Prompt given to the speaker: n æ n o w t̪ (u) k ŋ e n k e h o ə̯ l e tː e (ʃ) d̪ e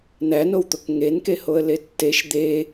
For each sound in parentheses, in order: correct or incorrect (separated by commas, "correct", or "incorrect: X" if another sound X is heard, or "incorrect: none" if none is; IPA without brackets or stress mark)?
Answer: incorrect: o, correct